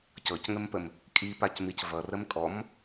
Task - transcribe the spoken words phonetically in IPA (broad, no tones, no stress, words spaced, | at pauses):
cɤcŋəmpəm | kʼipacmic vʌrəm kʼɔm